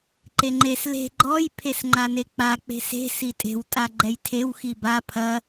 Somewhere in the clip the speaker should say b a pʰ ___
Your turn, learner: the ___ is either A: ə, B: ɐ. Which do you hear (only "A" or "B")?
B